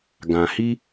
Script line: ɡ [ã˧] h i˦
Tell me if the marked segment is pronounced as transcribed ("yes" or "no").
yes